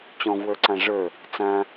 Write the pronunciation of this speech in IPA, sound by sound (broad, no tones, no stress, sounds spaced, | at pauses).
t͡ɕ ɔ̃ v w ə˞ ǀ ã ʐ ə˞ | t͡s ã